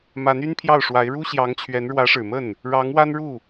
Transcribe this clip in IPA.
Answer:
m a˧˥ n y˥ n pʰ j ɑ˥˩ ʊ̯ ʂ w a˧˥ ɪ̯ ɻ u˥ ɕ j ɑ˧˥ ŋ t͡ɕʰ ɥ ɛ˧˥ n ɻ w ä˧˥ ʂ ɻ̩˨˩ m ə˥˩ n | ɻ ɑ˧˥ ŋ w a˥ n ɻ u˥˩

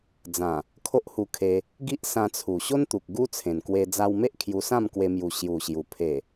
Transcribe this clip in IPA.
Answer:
d͡z ã˨˩ | kʰ o˦ ʔ h u˧ kʰ e˧ | ɡ i˦ ʔ s ã˧ t͡sʰ u˨˩ ɕ o˦ n t̪ u˨ k̚ ɡ u˦ t͡sʰ ẽ˨˩ n k w e˧ d͡z a˧ w m e˦ ʔ kʰ j u˧ s ã˥˧ m k w e˧ m j u˨˩ ɕ j u˨˩ ɕ j u˨˩ pʰ e˨˩

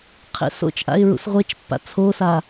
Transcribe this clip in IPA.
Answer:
qʰ ḛ s o̰ t͡ʃ ʔ a̰ ɪ̯ ɹ ṵ s ʁʷ e t͡ʃ pː a̰ t͡sʰ o s a

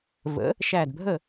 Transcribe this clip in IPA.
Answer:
v ə̰˩˥ | ʃ æ˧˩ d bʱ ə˥˩

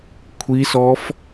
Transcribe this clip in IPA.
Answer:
kʷʰ i s ɔ f

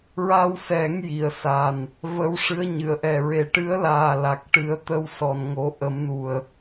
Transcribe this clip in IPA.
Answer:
ɹ a˧ w s ɛ˨˩˦ ŋ j i˨˩˨ ə̯ s a˨˩ n | v ə˧˥ w ʂ ɨ˧˥ ə̯ ɲ ɨ˨˩˨ ə̯ ʔ ɛ˨˩ ɹ e˨˩ ʈ ɨ˧˥ ə̯ l aː˨˩ l a˨˩ k̚ ʈ ɨ˨˩˦ ə̯ t̪ ə˧˥ w s ɔ˨˩ n ŋ o˨˩˦ ʔ ə˨˩˦ m n u˨˩ ə̯

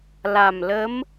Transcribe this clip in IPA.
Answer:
l a˨˩ m l ə˧˥ m

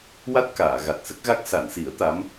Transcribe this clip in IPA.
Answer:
w a˦˥ t̚ k aː˨˩˨ ɣ a˨˩ t̚ s ə˦˥ k̚ ɣ a˦˥ k̚ s a˨˩˨ n s i˨˩˦ ə̯ t̪ a˧˥ m

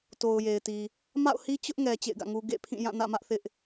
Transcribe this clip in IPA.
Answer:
t o˨ ʊ̯ j e˨ ɪ̯ t i˨ | m a̰˦˨ ʊ̯ h i˦ t͡ɕ ʊ˦ ʔ ŋ ɛ˨ t͡ɕ ḛ˦˨ ɪ̯ ɡ ä̰˦˨ ŋ u˦ ɡ ḛ˦˨ pʰ ĩ˦˨ j ã˦˨ n ä̰˦˨ m ä˦ ʔ θ ɪ˦ ʔ

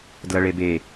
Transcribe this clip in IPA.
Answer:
d l ʌ ɭ e b e

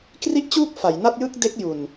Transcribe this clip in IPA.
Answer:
k r i˦˥ ʔ t͡ɕ uː˦˥ k̚ f a˩˦ j n a˥˩ t̚ j ɯ˥˩ k̚ d e˦˥ k̚ j u˨˩ n

